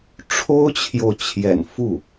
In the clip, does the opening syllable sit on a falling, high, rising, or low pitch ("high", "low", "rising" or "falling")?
high